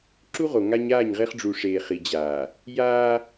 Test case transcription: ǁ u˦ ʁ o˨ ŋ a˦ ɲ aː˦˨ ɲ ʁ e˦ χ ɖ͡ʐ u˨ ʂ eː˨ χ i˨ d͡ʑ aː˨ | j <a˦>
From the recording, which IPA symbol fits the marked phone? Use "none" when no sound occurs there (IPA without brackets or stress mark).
aː˦